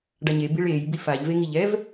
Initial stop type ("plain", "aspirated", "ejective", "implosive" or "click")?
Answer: plain